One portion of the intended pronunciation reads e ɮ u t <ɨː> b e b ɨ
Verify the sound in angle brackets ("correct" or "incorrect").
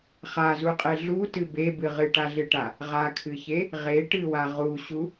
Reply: incorrect